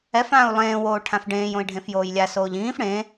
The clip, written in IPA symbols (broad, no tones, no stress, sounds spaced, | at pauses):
ɛ f ãː u̯ lˠ ẽː w oː ʈʰ ã f ɖ ẽː j õ i̯ ɖʱ ẽ f j oː j lʲ a s oː ʎ ĩː f ɽ ẽ